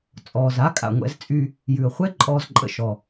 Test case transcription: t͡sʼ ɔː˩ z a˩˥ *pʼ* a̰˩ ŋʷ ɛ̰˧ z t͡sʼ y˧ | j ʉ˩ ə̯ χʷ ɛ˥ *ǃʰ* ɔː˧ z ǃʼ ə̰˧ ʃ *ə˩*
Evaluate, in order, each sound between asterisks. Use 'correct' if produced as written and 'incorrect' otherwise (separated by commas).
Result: incorrect, incorrect, incorrect